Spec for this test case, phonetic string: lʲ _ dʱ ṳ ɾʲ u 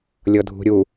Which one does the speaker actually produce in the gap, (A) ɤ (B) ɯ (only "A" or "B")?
A